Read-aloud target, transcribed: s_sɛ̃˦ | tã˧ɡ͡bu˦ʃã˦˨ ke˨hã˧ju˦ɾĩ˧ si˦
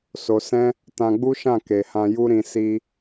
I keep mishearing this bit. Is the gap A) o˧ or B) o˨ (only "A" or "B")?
A